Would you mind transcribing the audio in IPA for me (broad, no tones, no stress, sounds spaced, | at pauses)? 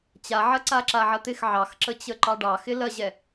t͡ɕ a ʕ ɐ ǀ a ǁ a ʕ ɐ t̪ ɪ x ʕ ɑ x ǁ ə t͡ɕ ə ǃ ɑ ɖ ɑ x ɪ l ɐ ʑ ɛ